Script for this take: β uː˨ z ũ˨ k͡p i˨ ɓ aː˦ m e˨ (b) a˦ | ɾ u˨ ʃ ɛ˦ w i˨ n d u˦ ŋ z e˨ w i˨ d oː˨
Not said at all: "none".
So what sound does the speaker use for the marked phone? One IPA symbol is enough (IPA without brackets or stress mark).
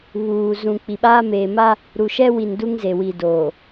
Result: m